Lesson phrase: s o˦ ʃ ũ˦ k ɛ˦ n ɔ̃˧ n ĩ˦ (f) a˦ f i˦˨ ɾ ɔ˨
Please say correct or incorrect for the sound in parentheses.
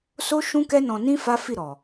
correct